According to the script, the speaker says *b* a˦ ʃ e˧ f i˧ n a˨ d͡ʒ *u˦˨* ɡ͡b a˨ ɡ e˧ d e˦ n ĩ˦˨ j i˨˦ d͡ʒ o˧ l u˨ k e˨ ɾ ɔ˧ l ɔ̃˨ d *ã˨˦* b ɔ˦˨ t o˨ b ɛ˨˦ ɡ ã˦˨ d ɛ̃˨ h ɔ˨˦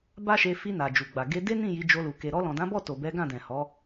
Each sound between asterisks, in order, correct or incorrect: correct, incorrect: u˨, correct

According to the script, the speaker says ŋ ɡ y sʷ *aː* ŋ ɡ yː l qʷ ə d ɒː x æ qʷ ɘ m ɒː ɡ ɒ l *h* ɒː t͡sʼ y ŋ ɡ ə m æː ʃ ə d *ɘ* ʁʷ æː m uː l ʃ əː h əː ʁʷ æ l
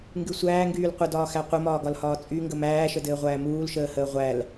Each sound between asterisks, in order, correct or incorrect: incorrect: æː, correct, incorrect: ɘː

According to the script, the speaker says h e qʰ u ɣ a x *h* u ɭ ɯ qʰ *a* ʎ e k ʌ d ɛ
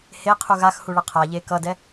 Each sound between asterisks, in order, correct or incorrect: correct, correct

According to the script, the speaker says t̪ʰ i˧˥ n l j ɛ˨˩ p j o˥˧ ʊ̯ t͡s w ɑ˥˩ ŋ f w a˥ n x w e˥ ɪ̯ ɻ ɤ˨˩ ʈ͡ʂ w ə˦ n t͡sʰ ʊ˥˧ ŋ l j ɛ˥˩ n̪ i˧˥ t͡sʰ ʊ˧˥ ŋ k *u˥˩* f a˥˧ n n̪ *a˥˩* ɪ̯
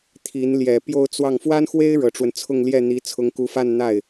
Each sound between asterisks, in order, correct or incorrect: incorrect: u˧˥, correct

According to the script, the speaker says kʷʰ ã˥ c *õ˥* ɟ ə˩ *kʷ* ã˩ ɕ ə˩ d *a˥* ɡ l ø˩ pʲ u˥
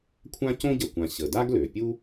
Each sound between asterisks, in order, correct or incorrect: correct, correct, correct

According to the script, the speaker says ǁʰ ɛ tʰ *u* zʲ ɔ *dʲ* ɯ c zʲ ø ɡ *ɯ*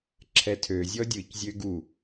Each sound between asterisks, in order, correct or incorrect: incorrect: ø, correct, incorrect: u

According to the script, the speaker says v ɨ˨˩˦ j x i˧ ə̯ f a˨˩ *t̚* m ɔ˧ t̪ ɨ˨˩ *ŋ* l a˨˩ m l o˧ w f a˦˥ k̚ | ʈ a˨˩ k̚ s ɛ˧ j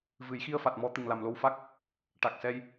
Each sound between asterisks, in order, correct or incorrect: correct, correct

